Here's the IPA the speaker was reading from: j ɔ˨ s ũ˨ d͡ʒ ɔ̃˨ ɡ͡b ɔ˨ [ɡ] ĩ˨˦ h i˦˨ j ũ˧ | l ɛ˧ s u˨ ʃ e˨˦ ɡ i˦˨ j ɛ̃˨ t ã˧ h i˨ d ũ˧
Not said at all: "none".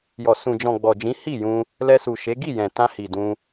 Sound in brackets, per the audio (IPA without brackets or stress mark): d͡ʒ